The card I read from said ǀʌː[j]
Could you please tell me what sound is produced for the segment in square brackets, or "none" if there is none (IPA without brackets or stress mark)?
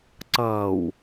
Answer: w